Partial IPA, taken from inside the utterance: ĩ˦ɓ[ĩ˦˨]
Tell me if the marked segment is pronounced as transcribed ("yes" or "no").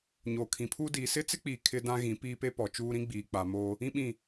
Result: yes